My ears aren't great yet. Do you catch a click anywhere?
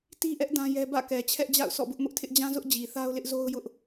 no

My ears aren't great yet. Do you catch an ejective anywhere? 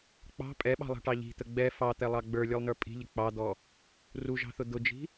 yes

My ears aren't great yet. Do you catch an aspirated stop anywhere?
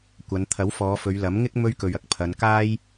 yes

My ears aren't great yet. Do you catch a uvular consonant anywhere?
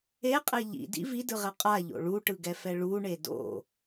yes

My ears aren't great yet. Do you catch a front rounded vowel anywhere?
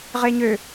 yes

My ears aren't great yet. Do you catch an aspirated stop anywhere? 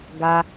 no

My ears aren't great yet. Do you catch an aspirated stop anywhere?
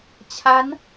yes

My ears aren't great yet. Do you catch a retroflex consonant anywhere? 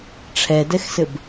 yes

